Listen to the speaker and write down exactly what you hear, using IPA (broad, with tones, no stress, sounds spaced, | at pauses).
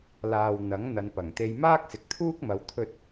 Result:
l aː˨ w n̪ ɐ˨˥ ŋ n̪ ɐ˨ n p ɐ˨˩ ŋ t̪ e˧ j m aː˥ k̚ s ɪ˨ k̚ t̪ʰ uː˥ k̚ m ɐ˨˧ w t̪ʰ ɵ˥ t̚